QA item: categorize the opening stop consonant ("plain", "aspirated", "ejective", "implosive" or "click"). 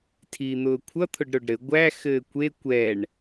aspirated